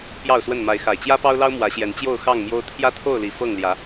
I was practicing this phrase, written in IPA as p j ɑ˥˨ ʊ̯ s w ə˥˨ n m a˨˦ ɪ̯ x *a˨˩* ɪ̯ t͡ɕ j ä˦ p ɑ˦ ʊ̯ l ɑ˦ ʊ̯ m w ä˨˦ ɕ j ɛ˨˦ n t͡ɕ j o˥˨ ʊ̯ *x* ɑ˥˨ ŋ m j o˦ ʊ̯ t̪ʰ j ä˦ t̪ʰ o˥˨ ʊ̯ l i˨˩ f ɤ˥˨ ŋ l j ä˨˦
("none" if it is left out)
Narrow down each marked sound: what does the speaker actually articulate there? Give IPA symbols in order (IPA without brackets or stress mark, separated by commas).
a˨˩, x